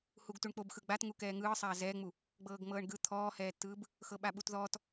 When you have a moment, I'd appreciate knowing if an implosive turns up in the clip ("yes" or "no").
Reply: yes